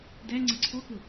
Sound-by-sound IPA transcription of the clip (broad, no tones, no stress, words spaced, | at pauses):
dæ ŋ͡ǀʌǀʰɔkʊ